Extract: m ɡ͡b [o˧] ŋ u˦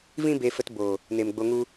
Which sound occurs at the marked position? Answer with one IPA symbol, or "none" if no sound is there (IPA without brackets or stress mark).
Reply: o˧